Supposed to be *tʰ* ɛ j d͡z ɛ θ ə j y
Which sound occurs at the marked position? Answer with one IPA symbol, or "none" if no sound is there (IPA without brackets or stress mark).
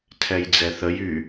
tʰ